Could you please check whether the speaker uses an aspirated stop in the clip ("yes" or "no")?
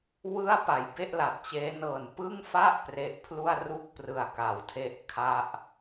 yes